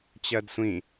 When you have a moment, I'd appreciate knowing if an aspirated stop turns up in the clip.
no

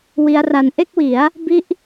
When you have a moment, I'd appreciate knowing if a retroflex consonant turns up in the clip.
no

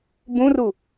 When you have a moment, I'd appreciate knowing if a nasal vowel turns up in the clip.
yes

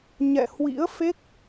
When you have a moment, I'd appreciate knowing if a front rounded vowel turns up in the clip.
no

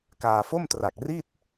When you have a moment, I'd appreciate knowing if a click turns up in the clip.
no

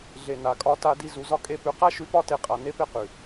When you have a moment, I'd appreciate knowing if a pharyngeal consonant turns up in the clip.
no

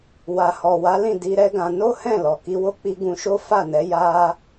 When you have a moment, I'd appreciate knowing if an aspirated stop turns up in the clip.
no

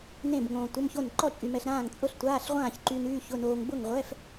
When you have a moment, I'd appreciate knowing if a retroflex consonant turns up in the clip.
no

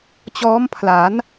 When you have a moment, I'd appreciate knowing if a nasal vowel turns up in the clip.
no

